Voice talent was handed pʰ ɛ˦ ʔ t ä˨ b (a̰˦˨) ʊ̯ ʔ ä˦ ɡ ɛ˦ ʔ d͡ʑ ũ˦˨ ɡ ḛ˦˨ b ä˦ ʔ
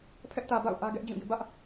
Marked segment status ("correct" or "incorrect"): correct